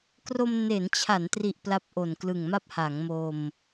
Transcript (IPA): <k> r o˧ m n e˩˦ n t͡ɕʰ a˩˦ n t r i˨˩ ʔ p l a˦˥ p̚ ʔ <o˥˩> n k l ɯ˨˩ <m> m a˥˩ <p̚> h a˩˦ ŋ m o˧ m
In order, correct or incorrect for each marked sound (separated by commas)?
correct, incorrect, incorrect, correct